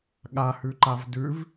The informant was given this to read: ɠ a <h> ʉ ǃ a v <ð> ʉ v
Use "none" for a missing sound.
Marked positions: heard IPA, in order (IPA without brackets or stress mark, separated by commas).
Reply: h, d